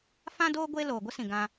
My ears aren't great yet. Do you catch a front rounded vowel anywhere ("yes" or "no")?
no